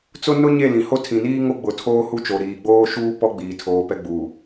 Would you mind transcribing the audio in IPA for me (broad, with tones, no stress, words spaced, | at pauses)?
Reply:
t͡sʊ˦ nʊ˦ɲe˦˨ lĩ˨ho˦ tʰĩ˨niː˦ŋo˦ ɡ͡bʊ˨ tʰoː˦hu˦t͡ʃo˨ ɾiː˨ɡ͡boː˦ʃuː˦ pɔ˦ɡ͡biː˨tʰoː˨ pɛ˦ɡ͡buː˨